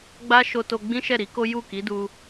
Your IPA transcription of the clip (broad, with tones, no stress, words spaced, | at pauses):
ɡ͡ba˦ʃo˧to˧ ɡ͡bĩ˦ʃɛ˦˨ ɾi˨˦ko˦ ju˦˨ki˨˦du˧